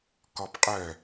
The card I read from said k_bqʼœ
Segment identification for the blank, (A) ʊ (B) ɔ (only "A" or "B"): B